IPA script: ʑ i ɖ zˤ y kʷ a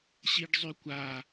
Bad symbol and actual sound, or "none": ʑ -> ɕ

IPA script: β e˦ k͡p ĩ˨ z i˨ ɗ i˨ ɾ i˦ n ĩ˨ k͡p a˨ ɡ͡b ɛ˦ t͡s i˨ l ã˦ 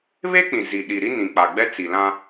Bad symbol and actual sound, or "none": none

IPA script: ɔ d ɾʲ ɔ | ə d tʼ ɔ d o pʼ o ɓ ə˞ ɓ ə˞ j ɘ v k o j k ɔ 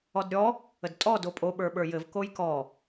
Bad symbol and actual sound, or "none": none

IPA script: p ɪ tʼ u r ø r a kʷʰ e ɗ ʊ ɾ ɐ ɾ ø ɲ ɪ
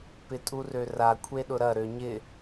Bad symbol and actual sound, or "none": none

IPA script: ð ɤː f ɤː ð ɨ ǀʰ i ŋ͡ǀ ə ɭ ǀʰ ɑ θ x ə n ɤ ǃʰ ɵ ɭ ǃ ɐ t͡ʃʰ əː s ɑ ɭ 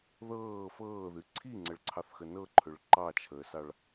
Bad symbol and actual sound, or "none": ɐ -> ɑ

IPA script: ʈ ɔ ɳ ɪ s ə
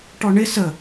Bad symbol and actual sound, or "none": none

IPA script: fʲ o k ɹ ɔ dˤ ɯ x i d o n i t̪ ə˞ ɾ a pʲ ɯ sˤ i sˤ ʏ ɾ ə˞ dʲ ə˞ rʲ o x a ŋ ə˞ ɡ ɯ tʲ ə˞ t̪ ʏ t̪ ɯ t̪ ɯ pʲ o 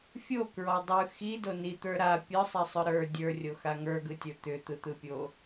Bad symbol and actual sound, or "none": none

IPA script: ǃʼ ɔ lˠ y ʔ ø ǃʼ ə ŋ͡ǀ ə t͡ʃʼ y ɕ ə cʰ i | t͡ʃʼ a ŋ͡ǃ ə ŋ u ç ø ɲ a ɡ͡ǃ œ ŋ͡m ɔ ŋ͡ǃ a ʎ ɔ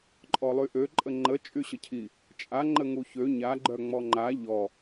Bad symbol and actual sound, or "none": ŋ͡ǀ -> ŋ͡ǃ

